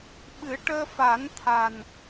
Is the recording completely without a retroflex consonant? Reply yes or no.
no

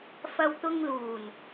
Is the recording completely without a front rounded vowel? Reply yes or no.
yes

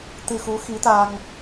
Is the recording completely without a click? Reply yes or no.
yes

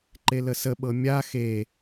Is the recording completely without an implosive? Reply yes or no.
no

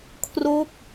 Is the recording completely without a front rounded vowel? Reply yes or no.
yes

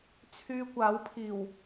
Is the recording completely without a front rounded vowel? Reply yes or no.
no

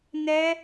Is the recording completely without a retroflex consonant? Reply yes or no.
yes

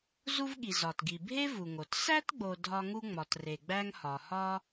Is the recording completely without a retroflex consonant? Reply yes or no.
yes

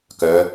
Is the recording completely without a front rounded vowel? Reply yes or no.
no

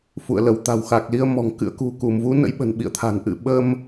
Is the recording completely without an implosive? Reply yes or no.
no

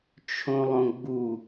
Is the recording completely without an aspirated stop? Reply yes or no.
no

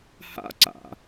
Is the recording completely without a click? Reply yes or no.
no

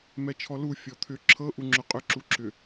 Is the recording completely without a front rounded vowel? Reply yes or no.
no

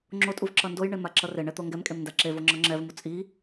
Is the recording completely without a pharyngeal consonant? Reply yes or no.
yes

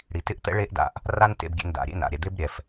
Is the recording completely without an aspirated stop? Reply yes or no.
yes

